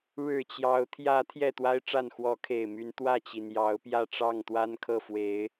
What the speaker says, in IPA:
ɻɻ̩˨˩ t͡ɕjɑ˨˦ʊ̯ t̪ʰjä˨˦ t̪ʰjɛ˥˨t̪wa˦ɪ̯ʈ͡ʂa˥˨n xwɔ˨˦kʰe˨˩ɪ̯my˨˦n t̪wä˥˨t͡ɕi˩njɑ˨˦ʊ̯ pjä˥˨ʈ͡ʂɑ˥˨ŋt̪wa˦nkʰɤ˥˨ fwe˨˦ɪ̯

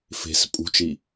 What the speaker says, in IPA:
fe̤s pʼṳt͡ʃi

